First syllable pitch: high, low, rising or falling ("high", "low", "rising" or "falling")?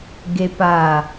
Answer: low